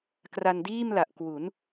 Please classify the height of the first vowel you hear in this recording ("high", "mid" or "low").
low